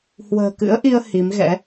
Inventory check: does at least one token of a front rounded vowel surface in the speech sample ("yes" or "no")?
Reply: no